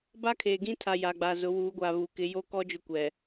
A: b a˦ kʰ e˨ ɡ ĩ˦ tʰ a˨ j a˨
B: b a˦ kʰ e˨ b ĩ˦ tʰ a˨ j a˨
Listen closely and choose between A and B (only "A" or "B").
A